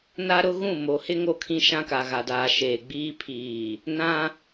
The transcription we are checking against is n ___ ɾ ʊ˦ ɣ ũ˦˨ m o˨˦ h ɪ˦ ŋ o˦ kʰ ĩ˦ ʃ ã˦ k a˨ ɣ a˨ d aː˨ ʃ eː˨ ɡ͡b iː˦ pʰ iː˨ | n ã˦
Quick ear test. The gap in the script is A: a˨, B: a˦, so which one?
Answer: B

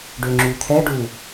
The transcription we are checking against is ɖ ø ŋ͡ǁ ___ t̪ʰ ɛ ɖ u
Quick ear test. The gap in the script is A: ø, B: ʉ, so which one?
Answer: B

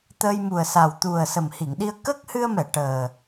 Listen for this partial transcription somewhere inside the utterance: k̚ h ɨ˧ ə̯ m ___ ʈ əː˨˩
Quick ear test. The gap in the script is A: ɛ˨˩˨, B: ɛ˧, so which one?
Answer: A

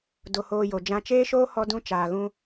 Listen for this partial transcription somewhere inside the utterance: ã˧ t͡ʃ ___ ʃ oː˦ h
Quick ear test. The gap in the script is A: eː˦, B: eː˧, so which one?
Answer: A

